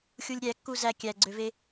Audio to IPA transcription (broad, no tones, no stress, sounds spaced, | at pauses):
xʲ u lʲ ɾʲ æ kː u z æ kʲ æ ɡ͡ǀ ø v e